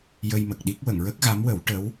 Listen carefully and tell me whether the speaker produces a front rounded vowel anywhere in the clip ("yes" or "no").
no